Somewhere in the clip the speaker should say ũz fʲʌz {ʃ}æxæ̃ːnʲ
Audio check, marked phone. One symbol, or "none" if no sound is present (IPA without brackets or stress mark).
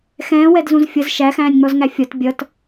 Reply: ʃ